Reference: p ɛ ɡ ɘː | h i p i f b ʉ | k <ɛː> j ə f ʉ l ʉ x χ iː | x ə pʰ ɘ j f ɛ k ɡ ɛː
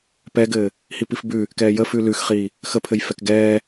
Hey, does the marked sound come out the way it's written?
yes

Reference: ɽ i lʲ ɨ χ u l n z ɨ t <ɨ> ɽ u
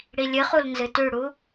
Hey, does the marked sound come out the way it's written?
no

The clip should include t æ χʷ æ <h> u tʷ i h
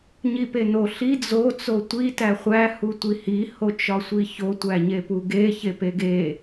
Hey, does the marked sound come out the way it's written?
yes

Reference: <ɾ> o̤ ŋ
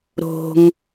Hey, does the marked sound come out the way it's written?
yes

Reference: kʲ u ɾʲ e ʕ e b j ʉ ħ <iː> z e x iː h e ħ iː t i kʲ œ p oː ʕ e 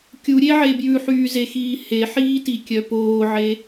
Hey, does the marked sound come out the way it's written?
no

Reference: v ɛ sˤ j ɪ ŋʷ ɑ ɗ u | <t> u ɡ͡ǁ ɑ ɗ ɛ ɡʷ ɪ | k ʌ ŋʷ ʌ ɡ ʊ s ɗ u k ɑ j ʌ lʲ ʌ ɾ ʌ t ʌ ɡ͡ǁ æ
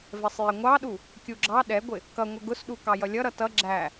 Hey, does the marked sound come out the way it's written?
no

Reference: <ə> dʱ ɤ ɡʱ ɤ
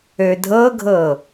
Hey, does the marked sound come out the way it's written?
no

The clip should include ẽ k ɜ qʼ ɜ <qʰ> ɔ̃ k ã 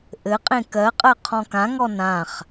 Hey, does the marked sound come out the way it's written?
yes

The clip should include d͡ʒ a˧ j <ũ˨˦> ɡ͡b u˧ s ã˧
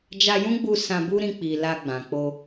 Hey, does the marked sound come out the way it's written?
no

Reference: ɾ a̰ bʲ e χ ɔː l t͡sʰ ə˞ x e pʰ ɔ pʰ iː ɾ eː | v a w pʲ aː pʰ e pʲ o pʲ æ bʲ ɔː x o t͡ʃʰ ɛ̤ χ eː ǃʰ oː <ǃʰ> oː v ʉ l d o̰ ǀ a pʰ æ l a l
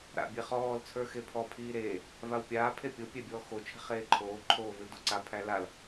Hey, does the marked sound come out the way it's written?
yes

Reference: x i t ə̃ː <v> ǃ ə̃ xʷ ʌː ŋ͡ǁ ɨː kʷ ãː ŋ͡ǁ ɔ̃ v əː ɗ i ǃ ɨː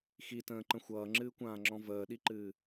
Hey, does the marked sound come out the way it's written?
no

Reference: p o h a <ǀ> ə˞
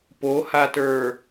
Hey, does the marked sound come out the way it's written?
no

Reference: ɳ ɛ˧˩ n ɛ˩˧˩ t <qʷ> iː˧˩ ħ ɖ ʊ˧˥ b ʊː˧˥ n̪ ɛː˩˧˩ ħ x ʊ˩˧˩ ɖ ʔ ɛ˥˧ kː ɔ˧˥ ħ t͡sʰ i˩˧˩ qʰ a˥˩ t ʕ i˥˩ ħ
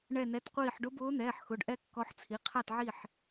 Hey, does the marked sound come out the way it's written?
yes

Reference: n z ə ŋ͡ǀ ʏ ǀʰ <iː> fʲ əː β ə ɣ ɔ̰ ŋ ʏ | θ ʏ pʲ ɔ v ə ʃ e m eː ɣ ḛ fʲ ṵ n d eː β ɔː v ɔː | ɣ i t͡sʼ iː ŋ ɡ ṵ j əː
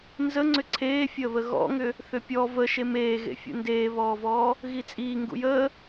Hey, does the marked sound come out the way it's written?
no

